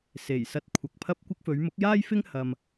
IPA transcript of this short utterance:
se˨˩jsɐ˧t̚ kʷʰɐ˨k̚pʰɐ˥p̚kʷɪ˥k̚ fɵ˨˧ɥmʊ˨˥k̚jaː˥jfɪ˥ŋ hɐ˧m

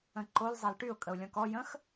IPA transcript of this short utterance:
ə̃ǃol zˤɛlʈyʊ̯ kʼəʊ̯lʲɔ̃kɔ jə̃x

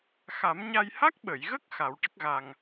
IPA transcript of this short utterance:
xa˨˩˦mɲa˧j ha˦˥k̚ɓə˨˩˨jɣə˦˥k̚ xa˨˩˦wʈə˦˥k̚ ɣa˨˩ŋ

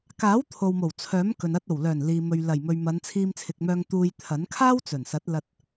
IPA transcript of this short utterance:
kaː˨˥wt̪ʰo˨wmo˨˩w t͡sʰœː˨˥mkɵ˨n ɐ˧t̚ o˨˩wlœː˨˩n liː˨mɵ˨ɥlɐ˨˩jmɵ˨ɥ mɐ˨˧n t͡sʰiː˧mt͡sʰɪ˨k̚mœː˧ŋ t̪uː˧jt̪ʰɐ˨˥n kʰaː˥wt͡sɵ˨˩nsɐ˨˥t̚lɐ˧t̚

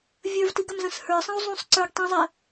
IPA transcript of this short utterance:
vʲə˞vtiɡɐmzɐ̃s hə˞sˤɐ̃u̯ zˤũsˤ ǀə˞ɡ tˤĩzˤɛ

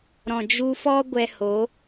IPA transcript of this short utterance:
ɾɔ̃˨d͡ʒu˧fɔ˦ ɡʷɛ˧ho˨˦

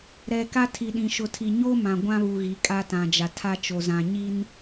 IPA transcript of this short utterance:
ɾɛ˨ ka˦tʰi˨ɗĩ˨ ʃʊ˨tʰi˨ ɲo˦ mã˨ɡʷã˦βu˨ ɣi˨˦kʼa˦ tã˨d͡ʒa˨tʰa˦t͡ʃo˨ zã˨ɲi˦n

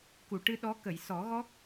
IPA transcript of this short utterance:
ku˨˩˨ʈɨ˧ ɗɔ˧˥kə˨˩˨j sɔ˨˩˦ɣɔ˦˥k̚

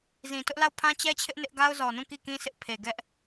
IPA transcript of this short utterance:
zĩ˨tʊ˦ʔla˦˨ʊ̯ pʰã˦t͡ɕɛ˦t͡ɕʰɪ˦ʔ nɪ˦ʔ ɡa˦ʊ̯zɔ˨nũ˦˨ ki˦˨kĩ˦sɪ˦ʔ pʰe˨ɡɛ˦ʔ

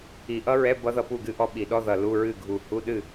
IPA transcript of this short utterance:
i˨˩˦ʔʌ˦˥ɹɛ˧˥˧ bʌ˦˥ ðʌ˥˨pu˥˨ɡɨ˥˨ ʔɔ˦˥ɓi˨˩˦ɗɔ˧˥˧ ðʌ˧˩ lu˧˥˧ɹɨ˥˨ɡʱu˧˩ hu˧˥˧ɗɨ˥˨

